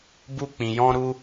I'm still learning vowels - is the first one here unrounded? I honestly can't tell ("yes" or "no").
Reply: no